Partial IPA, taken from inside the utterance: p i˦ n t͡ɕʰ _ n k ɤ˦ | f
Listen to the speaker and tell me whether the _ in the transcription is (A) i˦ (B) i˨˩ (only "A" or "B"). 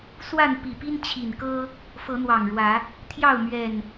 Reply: B